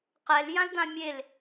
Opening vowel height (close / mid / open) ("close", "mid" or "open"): mid